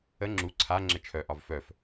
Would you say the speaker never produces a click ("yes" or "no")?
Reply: no